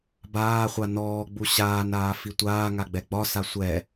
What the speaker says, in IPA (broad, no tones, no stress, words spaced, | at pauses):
baːχʷa nɔːɡ͡bu ɕaːnaː fitʷaːŋa ɡ͡bɛɡ͡bɒsa sʷɛ